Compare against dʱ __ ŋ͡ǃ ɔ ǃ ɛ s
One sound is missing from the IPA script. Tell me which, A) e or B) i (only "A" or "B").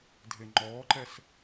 A